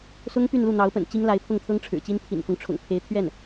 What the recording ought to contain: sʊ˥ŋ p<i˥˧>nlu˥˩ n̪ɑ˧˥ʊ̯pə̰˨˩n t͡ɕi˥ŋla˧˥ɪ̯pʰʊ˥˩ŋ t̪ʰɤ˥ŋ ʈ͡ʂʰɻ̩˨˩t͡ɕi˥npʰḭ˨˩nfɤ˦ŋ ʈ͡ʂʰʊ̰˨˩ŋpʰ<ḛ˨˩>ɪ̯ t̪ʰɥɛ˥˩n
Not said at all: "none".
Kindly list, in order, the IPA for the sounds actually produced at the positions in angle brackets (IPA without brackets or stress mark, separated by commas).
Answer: y˥˧, e˧˥